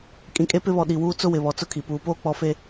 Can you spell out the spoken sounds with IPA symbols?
kʼĩ˨kʼe˦pɪ˦βɔ˨ ɗi˨wuː˦ t͡sʊ˦wɪ˨βɔ˨ t͡sʊ˦kʰi˨ puː˨poː˦ k͡pɔ˨fe˨

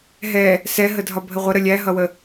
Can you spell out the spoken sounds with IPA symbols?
ɦɛ | sɛɦə dʱɒbʱəʁʷə ɾəlʲæɦʌwə

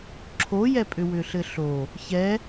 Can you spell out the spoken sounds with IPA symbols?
ǁʰojɛpʼʏ wʏɬɘɬo | çɛ

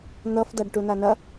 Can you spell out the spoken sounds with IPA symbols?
n̪ʌfdaɖ ʈunanɐ

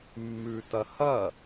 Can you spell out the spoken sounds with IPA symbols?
mːʉtɐhɐ

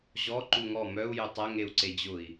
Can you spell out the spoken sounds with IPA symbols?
ʑɔ ǃuŋɔ mœu̯ jøtˤɐ ŋeu̯ǀed͡ʑʊi̯

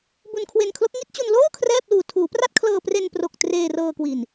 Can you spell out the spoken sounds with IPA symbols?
bu˧nkʰwe˧nkʰlo˦˥k̚ ŋi˦˥t̚t͡ɕu˧nloː˥˩ kʰrɛː˥˩p̚luː˧ tʰuː˩˦pra˥˩t̚ kʰlɤː˧pre˧npro˨˩k̚ treː˧rɤː˧kwi˨˩n

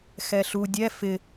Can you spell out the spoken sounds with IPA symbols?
xɛɬu dʲɛ fɪ

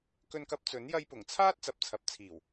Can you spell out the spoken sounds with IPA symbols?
kɵ˧nkɐ˧p̚t͡sɵ˨˥n jɐ˧jpʊ˨˩ŋt͡sʰaː˥t̚ t͡sɐ˨˥p̚t͡sʰɐ˨˥p̚t͡sʰiː˨˩w

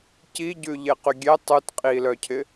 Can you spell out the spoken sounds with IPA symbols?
ciɟʉʎeqy ɡʲe tˤʉt qʼi lœcʰɪ

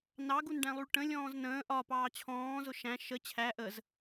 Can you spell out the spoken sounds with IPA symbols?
nɑɡunɖæ̃lˠuɭ ʈə̃lʲɔ̃ːz nə̃ː ʔɒ pɑːt͡ɕʰɔ̃ːzʊ ʃæ̃ ʃə t͡ɕʰæ ʔəz

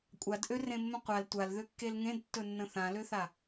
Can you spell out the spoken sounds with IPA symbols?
kʷʼadʔørẽmːə̃ qʷal tʷalðøkːel ŋẽdtːɵnːə̃ θãløθa

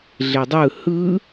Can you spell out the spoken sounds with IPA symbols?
ɮedˤɯ hɯ

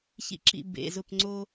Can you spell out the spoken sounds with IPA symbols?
çḭ˥˧ǁḭ˥˧ bḛ˧˥˧zʊ˥˧pŋ͡ǀo˥

